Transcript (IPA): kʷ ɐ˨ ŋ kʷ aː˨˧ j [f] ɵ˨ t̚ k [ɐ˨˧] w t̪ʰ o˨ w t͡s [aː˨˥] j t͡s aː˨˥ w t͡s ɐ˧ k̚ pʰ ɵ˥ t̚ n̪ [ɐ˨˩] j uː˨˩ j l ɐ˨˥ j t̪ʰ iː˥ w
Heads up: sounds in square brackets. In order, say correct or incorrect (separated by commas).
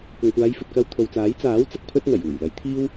correct, incorrect, correct, correct